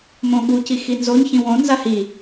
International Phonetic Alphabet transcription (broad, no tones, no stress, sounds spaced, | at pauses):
m õ ɠ u c i x i n z o ɲ ç ĩ w õ n z a h i